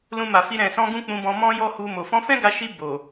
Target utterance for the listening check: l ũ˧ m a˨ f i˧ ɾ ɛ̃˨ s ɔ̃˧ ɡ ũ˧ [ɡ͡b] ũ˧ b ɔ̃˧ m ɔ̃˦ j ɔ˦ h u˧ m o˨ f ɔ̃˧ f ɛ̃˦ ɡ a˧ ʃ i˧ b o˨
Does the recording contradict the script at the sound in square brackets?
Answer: yes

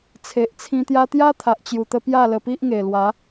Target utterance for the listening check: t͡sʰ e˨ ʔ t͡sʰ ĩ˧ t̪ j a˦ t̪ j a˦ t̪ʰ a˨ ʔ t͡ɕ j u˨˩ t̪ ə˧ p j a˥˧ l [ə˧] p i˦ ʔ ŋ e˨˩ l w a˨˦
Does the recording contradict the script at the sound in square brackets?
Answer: no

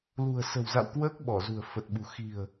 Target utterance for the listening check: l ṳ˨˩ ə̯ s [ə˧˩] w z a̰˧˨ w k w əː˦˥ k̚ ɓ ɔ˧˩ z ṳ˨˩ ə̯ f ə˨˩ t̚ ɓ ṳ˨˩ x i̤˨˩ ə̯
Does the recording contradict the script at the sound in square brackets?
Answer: yes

